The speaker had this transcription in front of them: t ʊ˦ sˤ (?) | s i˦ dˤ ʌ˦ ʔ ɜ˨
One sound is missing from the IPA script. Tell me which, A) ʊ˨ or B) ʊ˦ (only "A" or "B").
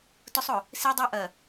A